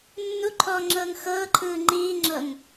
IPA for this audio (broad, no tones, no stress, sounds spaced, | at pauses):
nː u ǃʰ ɔː ŋ͡ǁ ɤː ŋ x ɤː ǃʰ ɯː ŋ͡ǃ iː ŋ͡ǁ ɤ ŋ